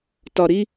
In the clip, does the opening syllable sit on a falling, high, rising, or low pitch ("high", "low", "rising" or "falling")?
low